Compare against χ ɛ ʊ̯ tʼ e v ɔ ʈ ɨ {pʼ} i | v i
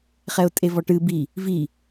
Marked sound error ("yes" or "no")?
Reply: yes